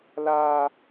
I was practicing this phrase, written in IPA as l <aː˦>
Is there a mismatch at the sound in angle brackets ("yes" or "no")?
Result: no